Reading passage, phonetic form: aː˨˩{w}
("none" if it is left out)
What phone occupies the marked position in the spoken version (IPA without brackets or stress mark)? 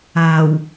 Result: w